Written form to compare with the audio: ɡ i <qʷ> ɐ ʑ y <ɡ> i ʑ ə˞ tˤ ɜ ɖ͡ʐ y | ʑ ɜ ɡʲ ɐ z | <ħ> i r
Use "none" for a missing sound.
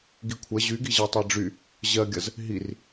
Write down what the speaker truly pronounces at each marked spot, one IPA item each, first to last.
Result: kʷʰ, ɡ, ɦ

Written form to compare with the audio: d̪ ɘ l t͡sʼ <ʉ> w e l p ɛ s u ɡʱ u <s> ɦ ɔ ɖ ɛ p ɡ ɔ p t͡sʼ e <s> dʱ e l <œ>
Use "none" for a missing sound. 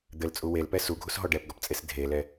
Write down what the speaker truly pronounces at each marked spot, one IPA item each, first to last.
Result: u, s, s, ɛ

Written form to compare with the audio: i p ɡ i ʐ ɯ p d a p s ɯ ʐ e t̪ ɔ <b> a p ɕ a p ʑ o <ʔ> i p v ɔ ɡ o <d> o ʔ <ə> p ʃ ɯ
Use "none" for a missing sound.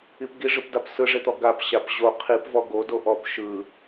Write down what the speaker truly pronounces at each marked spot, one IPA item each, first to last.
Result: ɡ, qʰ, d, ɔ

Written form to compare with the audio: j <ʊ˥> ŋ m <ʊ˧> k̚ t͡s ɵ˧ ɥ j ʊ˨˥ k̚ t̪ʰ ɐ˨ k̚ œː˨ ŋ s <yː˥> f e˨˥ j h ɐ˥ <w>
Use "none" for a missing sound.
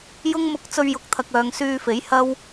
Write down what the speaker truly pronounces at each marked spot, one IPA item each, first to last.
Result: ʊ˥, ʊ˧, yː˧, w

